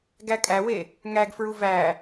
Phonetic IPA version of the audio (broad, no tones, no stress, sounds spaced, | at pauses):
ɡ æ kʼ æ w e | ŋ æ ɡ f ɹ u v æ